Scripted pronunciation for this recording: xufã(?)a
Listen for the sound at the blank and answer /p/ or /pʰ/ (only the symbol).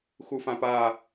p